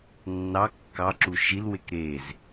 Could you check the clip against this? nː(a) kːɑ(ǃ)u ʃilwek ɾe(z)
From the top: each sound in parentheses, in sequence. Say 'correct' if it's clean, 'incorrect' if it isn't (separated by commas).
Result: incorrect, incorrect, correct